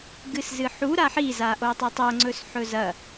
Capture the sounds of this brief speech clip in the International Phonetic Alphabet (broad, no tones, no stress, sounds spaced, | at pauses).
ɡ ɨ s z ɨ ħ u ɾ a ħ i z a ʔ o tˤ a tˤ o ŋ͡ǀ ɵ s ħ ɵ z ɐ